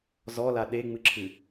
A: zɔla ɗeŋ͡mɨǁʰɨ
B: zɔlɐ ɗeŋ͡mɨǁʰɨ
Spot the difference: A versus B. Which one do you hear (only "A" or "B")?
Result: A